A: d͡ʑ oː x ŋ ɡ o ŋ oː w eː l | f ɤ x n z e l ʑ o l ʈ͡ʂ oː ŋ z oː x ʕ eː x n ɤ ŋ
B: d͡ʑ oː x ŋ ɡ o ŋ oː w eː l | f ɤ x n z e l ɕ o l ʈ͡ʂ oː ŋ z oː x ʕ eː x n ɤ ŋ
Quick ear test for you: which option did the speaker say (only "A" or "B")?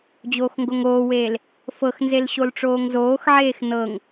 B